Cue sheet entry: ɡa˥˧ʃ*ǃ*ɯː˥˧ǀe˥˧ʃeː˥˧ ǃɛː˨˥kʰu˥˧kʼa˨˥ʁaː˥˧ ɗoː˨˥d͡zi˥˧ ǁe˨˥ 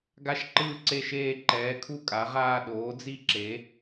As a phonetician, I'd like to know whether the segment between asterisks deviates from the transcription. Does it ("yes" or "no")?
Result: no